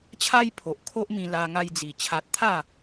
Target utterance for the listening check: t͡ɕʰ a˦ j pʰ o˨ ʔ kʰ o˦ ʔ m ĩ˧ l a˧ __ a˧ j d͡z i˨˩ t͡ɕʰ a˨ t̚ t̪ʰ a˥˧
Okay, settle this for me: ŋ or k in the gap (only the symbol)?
ŋ